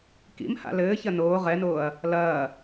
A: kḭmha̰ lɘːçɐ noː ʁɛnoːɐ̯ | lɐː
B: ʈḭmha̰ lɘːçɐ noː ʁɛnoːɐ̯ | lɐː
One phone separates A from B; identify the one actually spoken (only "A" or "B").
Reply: A